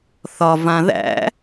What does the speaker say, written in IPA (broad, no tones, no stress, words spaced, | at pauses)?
θɒ vãðæ̰